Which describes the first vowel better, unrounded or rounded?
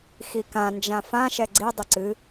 unrounded